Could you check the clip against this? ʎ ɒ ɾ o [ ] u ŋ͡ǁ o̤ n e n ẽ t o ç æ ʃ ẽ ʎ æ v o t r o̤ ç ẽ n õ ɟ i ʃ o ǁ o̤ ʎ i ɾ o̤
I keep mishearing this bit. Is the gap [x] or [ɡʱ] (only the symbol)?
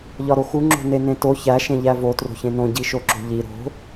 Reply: x